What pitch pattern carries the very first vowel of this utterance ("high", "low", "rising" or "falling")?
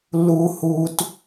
high